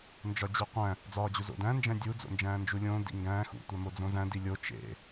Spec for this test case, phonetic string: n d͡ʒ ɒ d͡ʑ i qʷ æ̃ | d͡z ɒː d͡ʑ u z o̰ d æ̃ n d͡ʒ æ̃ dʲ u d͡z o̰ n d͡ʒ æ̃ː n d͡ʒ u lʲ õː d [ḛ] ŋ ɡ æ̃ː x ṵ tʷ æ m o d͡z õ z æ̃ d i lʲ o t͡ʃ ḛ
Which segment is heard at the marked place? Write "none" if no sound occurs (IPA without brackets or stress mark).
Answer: ḭ